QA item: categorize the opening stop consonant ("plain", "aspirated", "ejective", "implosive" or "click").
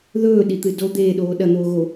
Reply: implosive